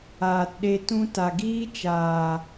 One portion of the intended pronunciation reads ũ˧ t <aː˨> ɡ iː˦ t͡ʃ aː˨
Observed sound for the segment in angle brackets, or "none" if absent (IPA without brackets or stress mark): a˨